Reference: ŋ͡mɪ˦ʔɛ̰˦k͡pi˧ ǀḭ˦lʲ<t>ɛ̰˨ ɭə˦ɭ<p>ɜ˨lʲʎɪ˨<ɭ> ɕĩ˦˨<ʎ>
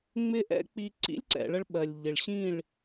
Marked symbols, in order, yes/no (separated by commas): no, no, yes, no